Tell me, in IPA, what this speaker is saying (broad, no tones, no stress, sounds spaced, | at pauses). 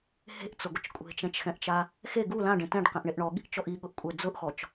h e̤ ʔ t͡s ʊ ɡʷ ɪ t͡ʃ kʷʼ e̤ t͡ʃ ɛ̃ t͡ʃ x ɛ̃ ʔ t͡ʃ a | x e ɡ u l ã ɖ ẽ t ɛ̃ ɖ q ɛ̃ ʔ ɳ e ʔ ɳ ɔ ɠ i̤ ʔ t͡ʃ ɔ ʔ i ɠ ʊ ʔ kʷʼ ɛ d͡z ʊ ʔ x ɔ t͡ʃ